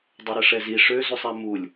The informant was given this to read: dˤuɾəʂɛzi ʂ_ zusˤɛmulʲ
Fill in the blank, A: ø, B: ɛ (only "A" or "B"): A